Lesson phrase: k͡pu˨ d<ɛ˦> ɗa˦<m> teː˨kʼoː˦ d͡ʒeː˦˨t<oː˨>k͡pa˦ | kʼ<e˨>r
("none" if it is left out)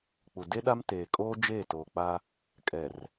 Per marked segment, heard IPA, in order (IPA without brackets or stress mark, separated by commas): e˦, m, oː˨, ɛ˨